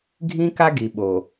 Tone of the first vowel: high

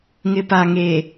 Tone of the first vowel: low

